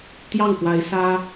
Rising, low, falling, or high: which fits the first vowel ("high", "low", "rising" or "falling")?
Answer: falling